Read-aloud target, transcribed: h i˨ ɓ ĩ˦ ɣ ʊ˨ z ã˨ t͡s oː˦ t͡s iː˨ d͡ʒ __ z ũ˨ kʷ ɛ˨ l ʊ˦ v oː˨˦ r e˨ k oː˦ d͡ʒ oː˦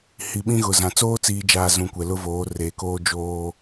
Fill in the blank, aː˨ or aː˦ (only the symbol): aː˨